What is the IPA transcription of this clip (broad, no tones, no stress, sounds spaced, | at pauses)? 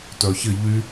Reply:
t œ ç ɪ ʎ y